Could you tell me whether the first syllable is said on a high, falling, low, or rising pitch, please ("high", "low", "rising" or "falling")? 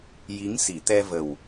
rising